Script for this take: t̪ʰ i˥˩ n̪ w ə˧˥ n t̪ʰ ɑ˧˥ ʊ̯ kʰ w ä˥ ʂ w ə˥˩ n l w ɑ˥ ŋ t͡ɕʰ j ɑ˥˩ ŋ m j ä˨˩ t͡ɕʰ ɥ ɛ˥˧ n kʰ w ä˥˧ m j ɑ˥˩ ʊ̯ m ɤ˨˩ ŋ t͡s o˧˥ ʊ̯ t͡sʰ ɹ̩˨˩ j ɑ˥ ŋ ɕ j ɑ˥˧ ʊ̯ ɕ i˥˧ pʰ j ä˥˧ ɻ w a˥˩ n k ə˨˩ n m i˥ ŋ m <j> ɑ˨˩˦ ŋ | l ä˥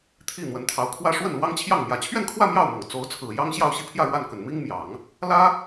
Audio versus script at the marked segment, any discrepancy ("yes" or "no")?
no